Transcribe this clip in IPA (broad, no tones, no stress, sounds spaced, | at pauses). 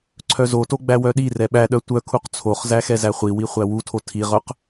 ǀʰ œ z o t o ɡ͡b æ w œ ɗ i r ɛ ɓ æ ɗ œ tʷ œ kʰ u q t͡sʰ o χ z æ x ɛ z æ χʷ i w i χʷ æ w u tʰ o tʰ i ʁ œ q